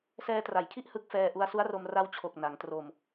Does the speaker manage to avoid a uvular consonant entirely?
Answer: yes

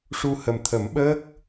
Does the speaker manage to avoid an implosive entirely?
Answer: no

